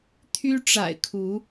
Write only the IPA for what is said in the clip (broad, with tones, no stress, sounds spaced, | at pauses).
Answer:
t̪ʰ y˦ ʈ͡ʂ a̰˨˩ ɪ̯ kʰ u˨˦